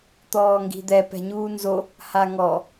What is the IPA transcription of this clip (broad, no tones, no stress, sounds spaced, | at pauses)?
t̪ ɔː ŋ ɡ i̤ d̪ ɛ p ɛ̤ ɲ uː n z o | h a ŋ ɔ